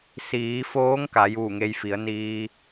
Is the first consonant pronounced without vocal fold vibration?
yes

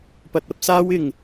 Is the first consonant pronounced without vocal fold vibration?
yes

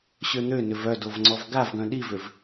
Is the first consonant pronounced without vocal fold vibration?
yes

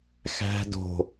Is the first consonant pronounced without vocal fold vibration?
yes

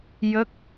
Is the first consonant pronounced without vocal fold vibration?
no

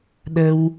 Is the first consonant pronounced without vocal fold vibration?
no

